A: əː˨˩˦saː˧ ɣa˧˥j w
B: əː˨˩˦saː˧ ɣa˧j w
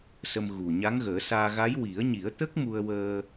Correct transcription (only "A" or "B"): A